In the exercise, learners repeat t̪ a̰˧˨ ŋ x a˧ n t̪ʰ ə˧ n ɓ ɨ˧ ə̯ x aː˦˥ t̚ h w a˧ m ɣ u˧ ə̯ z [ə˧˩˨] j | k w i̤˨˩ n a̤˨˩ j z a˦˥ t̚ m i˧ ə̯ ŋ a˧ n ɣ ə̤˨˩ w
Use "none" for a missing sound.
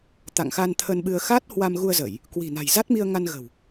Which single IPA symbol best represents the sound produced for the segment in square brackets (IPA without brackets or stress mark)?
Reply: ə˧˩˨